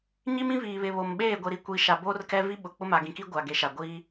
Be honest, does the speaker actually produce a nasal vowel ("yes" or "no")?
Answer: yes